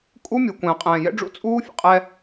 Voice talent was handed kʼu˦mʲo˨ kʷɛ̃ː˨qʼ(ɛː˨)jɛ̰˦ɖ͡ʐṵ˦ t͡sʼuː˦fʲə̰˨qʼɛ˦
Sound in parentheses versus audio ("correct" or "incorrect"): incorrect